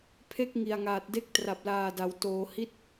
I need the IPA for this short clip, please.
pʰ e˦˥ k̚ ŋ i˨˩ a̯ ŋ aː˨˩ t̚ d e˦˥ k̚ t r a˨˩ p̚ l aː˨˩ d a˩˦ w t oː˩˦ h i˦˥ t̚

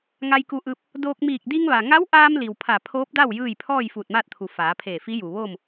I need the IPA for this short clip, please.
ŋ a˧ j k u˧ ʔ ɯː˧ p̚ | d oː˧ k̚ m iː˧˩ k̚ d i˧ ŋ ʋ a˩ ŋ a˧˥ w ʔ aː˧ m l i˩ w pʰ a˧˩ pʰ oː˧˥ p̚ d a˥˨ w j ɯː˥˨ j pʰ ɔː˥˨ j f uː˧˩ t̚ m aː˥˨ t̚ t̪ʰ u˩ f aː˩˧ pʰ eː˧˩ f i˧˥ j u˩ ʋ oː˥˨ m

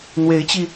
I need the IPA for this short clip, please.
n̪ w e˧˥ ɪ̯ t͡ɕ i˧

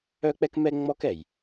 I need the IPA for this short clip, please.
œ˥ k͡p ɛ˥ k m ɛ˥ ŋ͡m ɔ˥ k ɛ˩ j

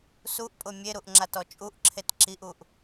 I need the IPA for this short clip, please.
s u ʔ pʼ ʊ mʲ e ɾ u ʔ ŋ͡ǁ a t ɔ t͡ʃʼ u ʔ ǁʰ e t ǁ i ʔ u ʔ

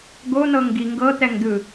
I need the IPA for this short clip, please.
ɡ o n̪ ɤ ŋ ɡ i ŋ ɡ ɤ t̪ ɛ ŋ d̪ ɯ

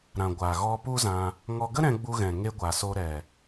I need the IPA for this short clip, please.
ɾ ã˨ ɡʷ aː˨ ɣ ɔ˧ p u˦ z ã˧ | ŋ ɔ˧ ɡ ə˦ ɾ ɛ̃˧ ɡ͡b u˧ ɣ ɛ̃˨ ŋ e˧ ɡʷ a˨ s o˧ ɾ ɛ˨

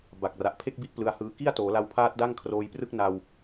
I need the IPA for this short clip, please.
b a˨˩ k̚ r a˨˩ ʔ pʰ e˥˩ k̚ b i˥˩ ʔ p l ɯ˧ a̯ h ɯː˧ k i˥˩ a̯ t oː˩˦ l a˧ w pʰ aː˦˥ t̚ d a˥˩ ŋ kʰ r oː˧ j p r ɯ˥˩ k̚ n a˧ w

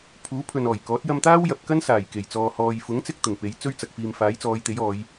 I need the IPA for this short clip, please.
pʰ uː˨˥ pʰ ɵ˨ n ɔː˨˩ j k ɔː˨˥ t̚ j ɐ˧ m t̪ aː˥ w j ɐ˨ p̚ k ɐ˥ n s aː˨˩ j k e˨˩ j t͡s ɔː˨ h ɔː˨ j f ʊ˨˥ ŋ t͡s ɪ˧ k̚ t̪ ʊ˨˩ ŋ p e˨˥ j t͡s ɵ˥ ɥ t͡s ɐ˨ k̚ f iː˨ m f aː˨˥ j t͡s ɔː˨˧ j t̪ e˨˥ j ɔː˨˧ j

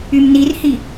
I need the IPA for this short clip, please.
y m n i r h i

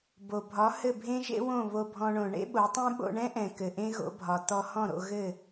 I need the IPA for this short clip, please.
b o˩ bʱ ɒ˩˥ h ɘ˥˩ bʱ ẽ˥ ʒ ḛ˥ w õ˥˩ β o˧ bʱ ɔ̃˧ ɳ õ˩ ɳ ḛ˥ ɓ o˩˥ tˤ ẽ˥ ɓ o̰˧ ɳ ɛ̃˥ ʔ ɛ̃˩ k ɘ˩ ʔ ẽ˥ ɣ o̰˩˥ bʱ ɒ˩ t̪ ɔ˧ h ɔ̃˥˩ ɾ o̰˧ ɣ ɘ˥˩

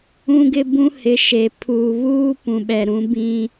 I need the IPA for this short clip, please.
ũ˦ ɡ ɪ˦ b ũ˦ h ɪ˨˦ ʃ e˨ pʰ uː˨ β uː˦ p ũ˨ ɓ ɛ˨ ɾ ũ˨˦ b ĩ˦

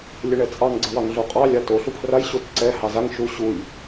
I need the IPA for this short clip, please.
lʲ ə ɳ ɛ t͡sʼ ɑ ŋ ɡ͡ǀ ə w ɑ ŋ ɮ o qʼ ɑ lʲ a t o ɬ u pʰ r a j ɕ o t ǀ ɛ h ɑ z a ŋ ʃ u ɕ u j

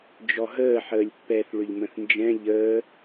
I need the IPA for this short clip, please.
d͡ʒ ɔ ɦ əː ħ əː lʲ pː ɛ θ ɭ ʏ ʎ m ə̃ θ n d͡ʒ ɛ̃ ʎ əː

